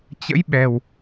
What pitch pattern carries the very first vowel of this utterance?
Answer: rising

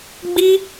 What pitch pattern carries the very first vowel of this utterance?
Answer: high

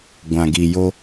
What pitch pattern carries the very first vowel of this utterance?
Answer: low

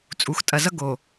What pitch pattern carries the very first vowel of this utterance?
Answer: low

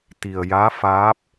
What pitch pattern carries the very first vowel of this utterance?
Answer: low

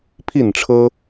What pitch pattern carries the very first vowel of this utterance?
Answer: falling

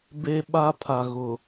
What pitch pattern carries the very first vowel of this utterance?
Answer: high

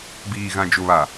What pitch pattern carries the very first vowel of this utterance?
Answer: low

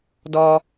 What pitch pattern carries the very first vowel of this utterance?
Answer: low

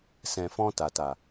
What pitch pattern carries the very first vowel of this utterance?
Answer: low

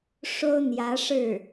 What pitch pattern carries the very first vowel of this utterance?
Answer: high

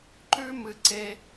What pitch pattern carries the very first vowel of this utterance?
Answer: high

